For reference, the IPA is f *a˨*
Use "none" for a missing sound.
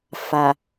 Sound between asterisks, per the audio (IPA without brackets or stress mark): a˨